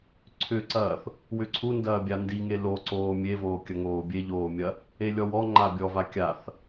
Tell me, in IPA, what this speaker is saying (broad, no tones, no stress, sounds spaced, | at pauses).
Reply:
ǀʰ ʏ ǀ ɐː θ | w ʏ ǀʰ u n d ɐː bʲ a n d i ŋ e l o ǀ oː mʲ e v oː kʲ ɐ ŋ oː bʲ e ʎ oː mʲ ɐ | e lʲ ɔ w ɔ ŋ͡ǃ a bʲ ɔ v a kʲ a θ